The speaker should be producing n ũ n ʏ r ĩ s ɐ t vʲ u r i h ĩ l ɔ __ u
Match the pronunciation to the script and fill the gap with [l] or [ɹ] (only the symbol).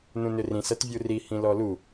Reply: l